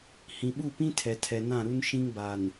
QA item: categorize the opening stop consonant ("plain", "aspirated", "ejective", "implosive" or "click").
implosive